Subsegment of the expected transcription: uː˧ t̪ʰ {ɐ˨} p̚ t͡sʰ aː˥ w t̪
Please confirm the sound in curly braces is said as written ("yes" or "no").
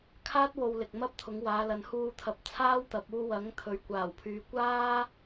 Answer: no